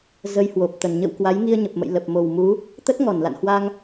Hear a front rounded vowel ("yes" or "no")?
no